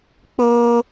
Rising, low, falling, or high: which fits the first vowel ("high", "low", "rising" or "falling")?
high